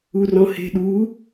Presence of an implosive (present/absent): present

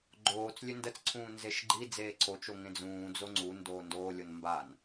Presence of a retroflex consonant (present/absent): absent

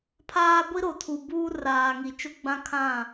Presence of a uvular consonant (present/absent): absent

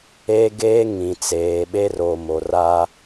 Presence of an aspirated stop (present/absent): absent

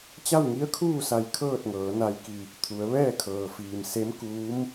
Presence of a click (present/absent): absent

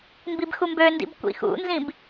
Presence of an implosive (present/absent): absent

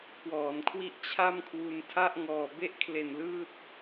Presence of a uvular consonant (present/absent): absent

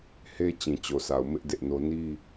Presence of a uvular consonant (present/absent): absent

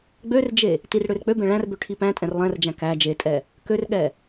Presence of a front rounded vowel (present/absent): present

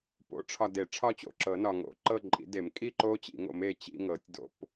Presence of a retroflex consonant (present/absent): present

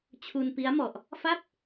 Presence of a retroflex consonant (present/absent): absent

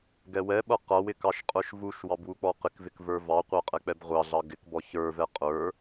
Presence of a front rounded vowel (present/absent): absent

